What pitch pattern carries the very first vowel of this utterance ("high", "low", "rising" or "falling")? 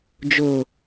low